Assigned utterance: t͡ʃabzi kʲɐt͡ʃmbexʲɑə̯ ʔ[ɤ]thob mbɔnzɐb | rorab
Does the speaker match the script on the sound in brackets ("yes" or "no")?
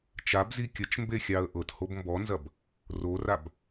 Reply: yes